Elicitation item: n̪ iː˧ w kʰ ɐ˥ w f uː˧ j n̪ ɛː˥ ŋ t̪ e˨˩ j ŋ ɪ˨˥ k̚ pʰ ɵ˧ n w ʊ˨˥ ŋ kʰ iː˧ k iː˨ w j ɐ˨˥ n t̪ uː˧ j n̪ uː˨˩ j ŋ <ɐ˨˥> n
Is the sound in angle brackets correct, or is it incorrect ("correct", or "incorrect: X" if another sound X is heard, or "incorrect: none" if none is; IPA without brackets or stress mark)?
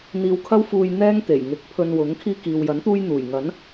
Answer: correct